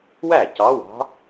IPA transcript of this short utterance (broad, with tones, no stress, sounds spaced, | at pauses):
w æ˥˩ c ɑ˧˥ w ɑ̤˧˥